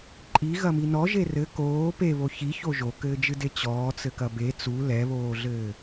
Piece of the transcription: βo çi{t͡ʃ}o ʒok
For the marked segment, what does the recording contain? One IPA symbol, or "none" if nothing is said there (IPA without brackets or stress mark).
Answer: ç